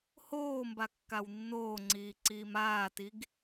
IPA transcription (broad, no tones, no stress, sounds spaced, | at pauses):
h oː m b a kː a w nː oː ŋ͡ǀ iː ǀ iː m aː t i ɡ